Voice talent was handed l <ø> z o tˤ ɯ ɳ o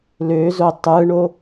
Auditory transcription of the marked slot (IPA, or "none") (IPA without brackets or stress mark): ø